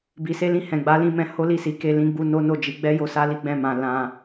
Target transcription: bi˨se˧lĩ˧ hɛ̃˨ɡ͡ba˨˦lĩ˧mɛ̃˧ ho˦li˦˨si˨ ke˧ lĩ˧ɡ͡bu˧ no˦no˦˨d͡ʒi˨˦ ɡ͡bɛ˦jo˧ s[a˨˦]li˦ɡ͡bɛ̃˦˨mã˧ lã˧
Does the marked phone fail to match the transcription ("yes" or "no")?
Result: yes